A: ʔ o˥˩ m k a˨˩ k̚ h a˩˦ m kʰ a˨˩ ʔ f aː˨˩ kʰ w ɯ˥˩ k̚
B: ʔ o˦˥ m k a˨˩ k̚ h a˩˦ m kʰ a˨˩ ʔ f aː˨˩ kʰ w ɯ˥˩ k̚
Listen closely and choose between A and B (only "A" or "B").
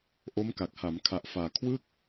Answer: B